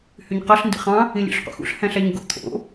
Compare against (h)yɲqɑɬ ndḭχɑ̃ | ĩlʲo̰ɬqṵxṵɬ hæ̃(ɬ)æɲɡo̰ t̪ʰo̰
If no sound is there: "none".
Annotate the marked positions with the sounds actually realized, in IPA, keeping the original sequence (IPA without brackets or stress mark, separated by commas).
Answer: h, ɬ